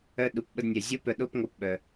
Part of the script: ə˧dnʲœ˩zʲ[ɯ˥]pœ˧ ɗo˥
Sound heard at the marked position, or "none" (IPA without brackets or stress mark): u˥